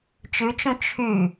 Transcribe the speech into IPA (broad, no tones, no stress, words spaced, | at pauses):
t͡ʃʉt͡ʃũ t͡ʃʰy